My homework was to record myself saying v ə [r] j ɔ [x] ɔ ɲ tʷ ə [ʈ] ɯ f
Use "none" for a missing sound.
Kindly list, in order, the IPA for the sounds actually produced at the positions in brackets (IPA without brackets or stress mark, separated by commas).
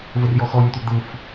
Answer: r, x, d̪